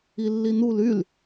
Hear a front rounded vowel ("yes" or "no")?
yes